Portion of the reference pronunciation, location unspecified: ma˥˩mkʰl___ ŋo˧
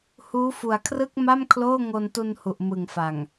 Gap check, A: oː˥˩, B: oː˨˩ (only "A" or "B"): A